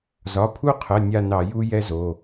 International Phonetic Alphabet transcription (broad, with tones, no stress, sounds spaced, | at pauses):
z ɒ˩˧˩ pʰ u˦˨ qʰ ə˩˧˩ nʲ a˦˨ n ɑ˧˩˧ j u˦ j ɛ˦ z o˩˧˩